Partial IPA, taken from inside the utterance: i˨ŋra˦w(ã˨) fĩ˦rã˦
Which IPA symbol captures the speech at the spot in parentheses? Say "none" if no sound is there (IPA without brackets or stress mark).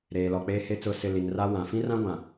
ã˨